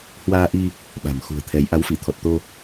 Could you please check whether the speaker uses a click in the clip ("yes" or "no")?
no